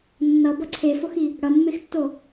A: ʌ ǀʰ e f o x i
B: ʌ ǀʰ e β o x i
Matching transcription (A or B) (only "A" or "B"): A